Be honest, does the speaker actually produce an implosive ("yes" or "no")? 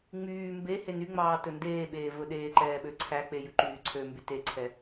yes